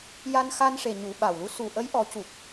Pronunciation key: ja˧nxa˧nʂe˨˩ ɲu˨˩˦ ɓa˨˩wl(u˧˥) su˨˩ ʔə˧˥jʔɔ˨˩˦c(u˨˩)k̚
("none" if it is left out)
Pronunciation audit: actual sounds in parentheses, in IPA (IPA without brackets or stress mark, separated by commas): u˧˥, u˨˩